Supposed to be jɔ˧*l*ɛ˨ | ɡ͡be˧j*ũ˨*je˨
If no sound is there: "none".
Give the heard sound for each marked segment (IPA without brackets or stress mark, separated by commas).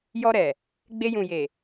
ɾ, ũ˨